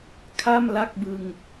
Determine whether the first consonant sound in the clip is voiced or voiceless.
voiceless